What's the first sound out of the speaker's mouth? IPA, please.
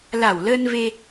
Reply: l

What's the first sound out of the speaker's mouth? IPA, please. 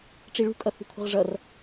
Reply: ʈ͡ʂ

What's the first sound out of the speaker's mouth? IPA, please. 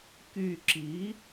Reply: k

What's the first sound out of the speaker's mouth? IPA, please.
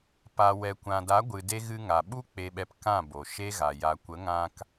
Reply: p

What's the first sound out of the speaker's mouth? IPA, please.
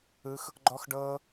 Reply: ɯ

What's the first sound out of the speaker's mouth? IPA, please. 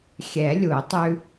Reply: xʲ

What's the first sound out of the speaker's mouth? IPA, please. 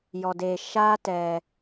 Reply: j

